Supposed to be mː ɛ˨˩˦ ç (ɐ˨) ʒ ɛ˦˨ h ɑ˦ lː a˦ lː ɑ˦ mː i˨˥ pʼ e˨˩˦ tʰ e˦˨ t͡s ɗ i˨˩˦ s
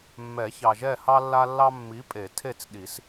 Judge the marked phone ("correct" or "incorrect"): incorrect